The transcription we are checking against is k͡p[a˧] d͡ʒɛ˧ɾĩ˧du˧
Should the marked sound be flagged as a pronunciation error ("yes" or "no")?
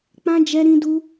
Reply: yes